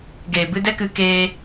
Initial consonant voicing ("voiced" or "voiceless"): voiced